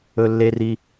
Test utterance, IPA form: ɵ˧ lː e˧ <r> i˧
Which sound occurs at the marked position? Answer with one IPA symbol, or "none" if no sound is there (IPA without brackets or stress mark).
r